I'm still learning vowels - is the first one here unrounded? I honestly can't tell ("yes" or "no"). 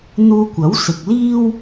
no